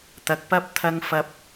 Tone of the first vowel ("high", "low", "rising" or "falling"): low